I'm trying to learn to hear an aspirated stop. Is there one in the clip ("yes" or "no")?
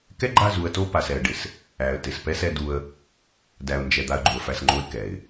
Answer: no